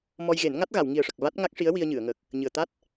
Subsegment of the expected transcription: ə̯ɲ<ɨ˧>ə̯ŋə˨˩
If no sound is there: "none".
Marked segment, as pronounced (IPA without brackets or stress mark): ɨ˨˩˨